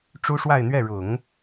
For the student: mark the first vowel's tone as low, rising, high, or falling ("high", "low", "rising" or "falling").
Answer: high